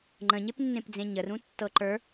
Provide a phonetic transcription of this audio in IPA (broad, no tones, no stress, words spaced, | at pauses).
ŋ͡ǃə̃ɲepnːẽp d͡zẽɲərũtːɤ ǃə˞